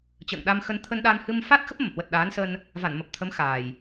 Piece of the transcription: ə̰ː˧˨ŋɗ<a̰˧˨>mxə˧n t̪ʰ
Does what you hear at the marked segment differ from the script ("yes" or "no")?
yes